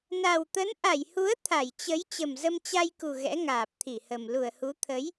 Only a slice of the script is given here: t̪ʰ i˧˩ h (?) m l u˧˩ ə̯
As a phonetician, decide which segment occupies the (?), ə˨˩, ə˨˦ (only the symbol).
ə˨˩